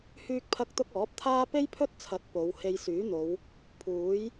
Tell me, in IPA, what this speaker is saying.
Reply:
hyː˧k̚pʰɐ˧k̚t̪ʊ˧k̚ ɔː˨˥p̚t̪ʰaː˥ pe˥jpʰɵ˥t̚t͡sʰɐ˨˥t̚ po˨˧w he˧jsyː˨˥n̪o˨˧w | pʰuː˨˥j

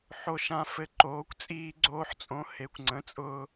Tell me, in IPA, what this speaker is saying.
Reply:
ħo˧ʃã˧ fɘ˧ǃoː˩˥kʷ t͡sʼiː˧ɡ͡ǀoː˧ħt͡sʼõ˩˥ he˩˥kʷŋ͡ǀə̃˩˥t͡sʼʊː˧

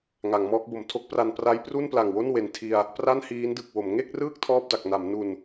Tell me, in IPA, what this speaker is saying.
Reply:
ŋa˩˦ŋmɔː˦˥k̚bo˩˦m tʰo˦˥k̚pra˧n pra˦˥jpru˥˩npla˨˩ŋwo˥˩n we˨˩ntʰi˧a̯ | pra˥˩nhiː˦˥ndɯ˨˩k̚wo˩˦m ŋe˥˩k̚rɯː˥˩k̚ tʰɔː˥˩p̚da˨˩k̚na˩˦m nu˨˩n

